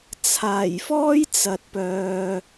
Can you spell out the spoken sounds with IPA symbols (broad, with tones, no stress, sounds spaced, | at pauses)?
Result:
t͡sʰ aː˨˩ j f ɔː˥ j t͡s ɐ˨ t̚ p œː˨